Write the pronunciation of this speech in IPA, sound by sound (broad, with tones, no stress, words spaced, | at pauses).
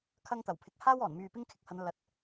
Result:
kʰɐ˥ŋt̪ɐ˨˩wpʰɪ˧k̚ haː˥w ɔː˨˩nmyː˨ pɪ˥ŋkʰɪ˨˥k̚hɐ˨˧n lɐ˨˥t̚